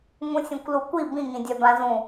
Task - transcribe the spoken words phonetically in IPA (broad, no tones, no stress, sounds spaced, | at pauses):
ŋ ũ sʲ ɛ̃ kʷ l u kʷ i b ĩ ŋ ĩ dʲ a b ã z ũ